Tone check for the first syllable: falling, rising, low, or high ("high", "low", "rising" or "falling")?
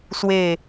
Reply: falling